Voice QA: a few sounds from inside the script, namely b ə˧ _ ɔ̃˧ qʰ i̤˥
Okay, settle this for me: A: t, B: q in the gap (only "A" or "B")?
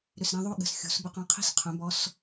B